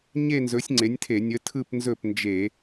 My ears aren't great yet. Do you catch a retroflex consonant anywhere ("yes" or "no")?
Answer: no